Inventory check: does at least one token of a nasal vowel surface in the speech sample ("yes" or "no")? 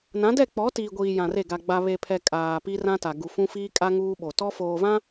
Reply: yes